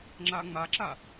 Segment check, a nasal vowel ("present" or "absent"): absent